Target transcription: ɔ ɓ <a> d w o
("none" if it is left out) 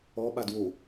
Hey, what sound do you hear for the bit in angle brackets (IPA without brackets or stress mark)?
a